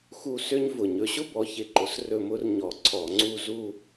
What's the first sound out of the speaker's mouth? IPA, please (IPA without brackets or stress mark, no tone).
x